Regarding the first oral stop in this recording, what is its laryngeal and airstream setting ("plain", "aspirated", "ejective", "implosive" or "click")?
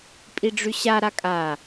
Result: ejective